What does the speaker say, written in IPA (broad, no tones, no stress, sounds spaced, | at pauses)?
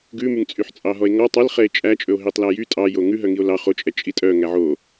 ɡ ʉ m y ŋ t͡sʼ y ħ t͡sʼ ɑ ɦ ɔ e̯ ŋ ɔ tˤ ɛ l χ ɛ e̯ t͡ʃʼ æ t͡ʃʼ ɵ o̯ ɦ i tˤ l æ j y tʼ ɑ j o ŋ ʉ ɦ œ ŋ i o̯ l ɑ χ o t͡ʃʼ ɛ t͡ʃʼ i tʼ œ ŋ æ ʕ o